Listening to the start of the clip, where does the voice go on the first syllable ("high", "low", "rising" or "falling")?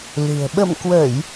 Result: low